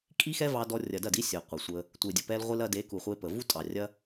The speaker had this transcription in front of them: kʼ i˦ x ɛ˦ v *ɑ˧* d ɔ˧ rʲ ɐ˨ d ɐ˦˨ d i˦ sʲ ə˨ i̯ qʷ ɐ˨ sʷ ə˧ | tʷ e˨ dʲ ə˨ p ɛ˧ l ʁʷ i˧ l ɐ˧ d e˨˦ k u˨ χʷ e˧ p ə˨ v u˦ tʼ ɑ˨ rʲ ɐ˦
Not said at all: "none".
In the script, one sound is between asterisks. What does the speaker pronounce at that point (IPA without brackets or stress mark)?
ɑ˧